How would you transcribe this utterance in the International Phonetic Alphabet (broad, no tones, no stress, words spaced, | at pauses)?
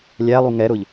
lʲælˠu ŋɛɾʊʎ